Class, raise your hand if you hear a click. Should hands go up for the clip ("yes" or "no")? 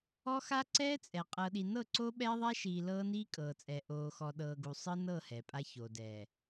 yes